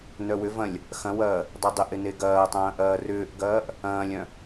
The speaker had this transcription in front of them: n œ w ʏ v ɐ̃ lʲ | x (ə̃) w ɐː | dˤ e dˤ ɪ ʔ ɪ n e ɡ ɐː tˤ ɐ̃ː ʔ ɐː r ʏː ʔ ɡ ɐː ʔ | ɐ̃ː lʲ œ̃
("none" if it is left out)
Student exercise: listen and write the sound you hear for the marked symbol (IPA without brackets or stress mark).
ɐ̃